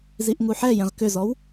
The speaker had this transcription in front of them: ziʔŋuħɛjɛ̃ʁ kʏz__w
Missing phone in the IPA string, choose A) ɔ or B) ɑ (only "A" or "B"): A